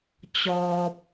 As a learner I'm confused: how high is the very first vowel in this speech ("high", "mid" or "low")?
mid